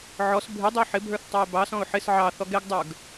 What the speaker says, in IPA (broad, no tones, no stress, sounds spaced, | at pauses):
ʕ ɔ s bʱ ɪ dˤ ɪ ʊ̯ ħ ɪ bʱ ə˞ θ tˤ ɑ ɪ̯ b ɑ s ɔ̃ ʊ̯ ħ ɪ s ʕ ɑ θ ɔ ɡ ɛ ɡ dˤ ə˞ ɡ